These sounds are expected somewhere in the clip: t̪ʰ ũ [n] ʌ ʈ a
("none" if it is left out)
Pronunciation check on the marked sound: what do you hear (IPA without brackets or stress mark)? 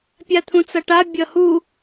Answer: t͡s